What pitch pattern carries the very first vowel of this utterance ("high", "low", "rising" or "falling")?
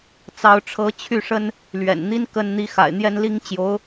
rising